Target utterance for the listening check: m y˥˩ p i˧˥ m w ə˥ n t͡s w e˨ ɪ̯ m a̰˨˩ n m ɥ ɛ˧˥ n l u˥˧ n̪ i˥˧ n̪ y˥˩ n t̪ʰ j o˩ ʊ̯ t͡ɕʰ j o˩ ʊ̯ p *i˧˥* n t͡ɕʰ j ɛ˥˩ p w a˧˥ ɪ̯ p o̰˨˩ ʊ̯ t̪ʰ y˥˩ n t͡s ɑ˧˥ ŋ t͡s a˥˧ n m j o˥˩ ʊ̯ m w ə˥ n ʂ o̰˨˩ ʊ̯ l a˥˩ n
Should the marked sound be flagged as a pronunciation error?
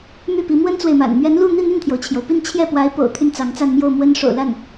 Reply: yes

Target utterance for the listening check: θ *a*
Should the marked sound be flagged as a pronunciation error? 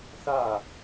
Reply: no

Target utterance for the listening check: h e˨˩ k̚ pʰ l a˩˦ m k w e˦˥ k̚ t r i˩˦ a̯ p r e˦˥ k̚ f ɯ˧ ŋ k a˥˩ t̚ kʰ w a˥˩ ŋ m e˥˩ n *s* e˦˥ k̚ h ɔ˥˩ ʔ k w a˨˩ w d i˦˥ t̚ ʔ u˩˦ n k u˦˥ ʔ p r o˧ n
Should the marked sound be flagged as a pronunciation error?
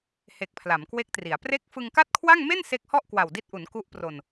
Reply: no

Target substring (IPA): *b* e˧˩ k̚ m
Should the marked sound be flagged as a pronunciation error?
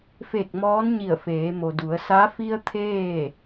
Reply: yes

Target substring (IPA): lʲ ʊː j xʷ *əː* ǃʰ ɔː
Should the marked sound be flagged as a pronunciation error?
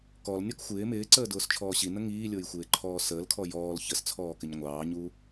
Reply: yes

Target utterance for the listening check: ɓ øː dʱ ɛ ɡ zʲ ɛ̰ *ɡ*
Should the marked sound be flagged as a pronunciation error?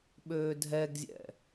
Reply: yes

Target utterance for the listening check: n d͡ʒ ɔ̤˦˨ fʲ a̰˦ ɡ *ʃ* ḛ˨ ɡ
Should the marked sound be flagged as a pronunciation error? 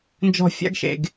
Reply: no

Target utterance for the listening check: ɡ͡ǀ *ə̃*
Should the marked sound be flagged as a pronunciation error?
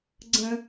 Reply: no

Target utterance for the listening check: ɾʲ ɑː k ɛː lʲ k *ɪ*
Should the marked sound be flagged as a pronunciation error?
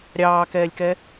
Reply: yes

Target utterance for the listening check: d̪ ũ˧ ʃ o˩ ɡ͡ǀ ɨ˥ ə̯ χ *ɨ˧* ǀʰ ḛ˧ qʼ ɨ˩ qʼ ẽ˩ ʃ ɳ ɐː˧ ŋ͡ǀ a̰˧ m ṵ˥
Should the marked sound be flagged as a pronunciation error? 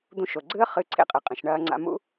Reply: no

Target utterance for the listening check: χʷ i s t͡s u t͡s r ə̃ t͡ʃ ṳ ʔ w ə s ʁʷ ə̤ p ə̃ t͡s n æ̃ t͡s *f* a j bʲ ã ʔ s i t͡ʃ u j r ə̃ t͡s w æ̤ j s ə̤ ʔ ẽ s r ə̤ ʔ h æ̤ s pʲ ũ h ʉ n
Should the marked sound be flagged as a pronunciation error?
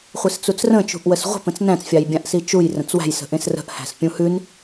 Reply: yes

